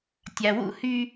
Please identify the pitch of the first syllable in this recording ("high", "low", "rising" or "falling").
low